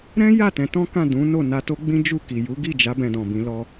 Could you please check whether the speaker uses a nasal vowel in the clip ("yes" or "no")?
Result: yes